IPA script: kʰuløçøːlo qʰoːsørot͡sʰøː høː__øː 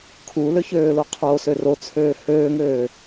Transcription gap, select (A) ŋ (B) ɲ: A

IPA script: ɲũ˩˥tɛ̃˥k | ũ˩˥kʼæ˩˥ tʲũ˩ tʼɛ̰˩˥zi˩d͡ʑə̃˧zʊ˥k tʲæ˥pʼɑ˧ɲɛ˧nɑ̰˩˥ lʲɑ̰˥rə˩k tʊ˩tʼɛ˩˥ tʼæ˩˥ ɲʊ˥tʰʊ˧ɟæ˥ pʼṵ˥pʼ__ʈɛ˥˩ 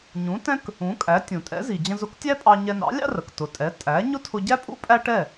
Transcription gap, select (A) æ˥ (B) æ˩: A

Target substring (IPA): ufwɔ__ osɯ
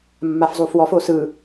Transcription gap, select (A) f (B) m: A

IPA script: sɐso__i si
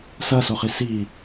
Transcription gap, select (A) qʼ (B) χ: B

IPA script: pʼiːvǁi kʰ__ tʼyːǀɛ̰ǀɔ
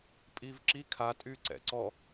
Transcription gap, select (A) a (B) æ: A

